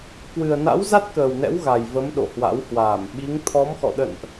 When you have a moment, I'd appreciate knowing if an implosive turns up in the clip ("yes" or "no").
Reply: yes